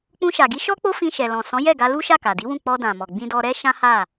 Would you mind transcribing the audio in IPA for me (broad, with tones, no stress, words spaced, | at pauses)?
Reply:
k͡pũ˧ʃa˨ɡi˨˦ʃɔ˦ k͡po˦fĩ˧ʃɛ˨lɔ̃˨ sɔ̃˨˦jɛ˦˨ ɡa˧lu˦ ʃa˦˨ka˨di˨˦wũ˦˨ k͡pɔ˧dã˨mɔ˨ ɡ͡bĩ˧dɔ˧ɾɛ˦ ʃã˦ha˦˨